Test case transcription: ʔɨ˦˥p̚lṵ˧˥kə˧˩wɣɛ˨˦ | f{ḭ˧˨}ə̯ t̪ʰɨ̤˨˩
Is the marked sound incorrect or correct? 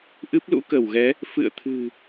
incorrect